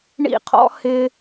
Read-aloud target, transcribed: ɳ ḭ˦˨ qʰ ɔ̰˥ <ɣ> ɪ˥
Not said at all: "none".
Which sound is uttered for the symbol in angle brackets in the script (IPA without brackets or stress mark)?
h